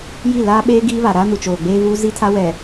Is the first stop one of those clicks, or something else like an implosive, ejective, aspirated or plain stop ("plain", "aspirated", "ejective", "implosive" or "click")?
implosive